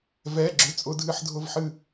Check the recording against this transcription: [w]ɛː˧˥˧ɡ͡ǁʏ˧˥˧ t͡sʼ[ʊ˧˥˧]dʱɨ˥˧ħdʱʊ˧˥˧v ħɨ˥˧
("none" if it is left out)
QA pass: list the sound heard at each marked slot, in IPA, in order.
v, ʊ˧˥˧

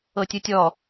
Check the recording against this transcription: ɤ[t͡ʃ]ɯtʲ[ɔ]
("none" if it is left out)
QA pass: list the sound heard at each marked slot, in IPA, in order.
tʲ, ɔ

